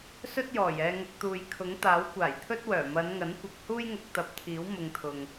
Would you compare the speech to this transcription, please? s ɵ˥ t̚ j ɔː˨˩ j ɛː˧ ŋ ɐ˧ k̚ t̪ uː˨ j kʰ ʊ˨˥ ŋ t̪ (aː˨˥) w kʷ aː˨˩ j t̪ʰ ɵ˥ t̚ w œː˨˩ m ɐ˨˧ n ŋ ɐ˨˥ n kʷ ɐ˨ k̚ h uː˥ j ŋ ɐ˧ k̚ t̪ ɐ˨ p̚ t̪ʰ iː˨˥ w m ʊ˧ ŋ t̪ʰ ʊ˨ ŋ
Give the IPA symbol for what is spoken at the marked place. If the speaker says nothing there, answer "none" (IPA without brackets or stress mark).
aː˨˥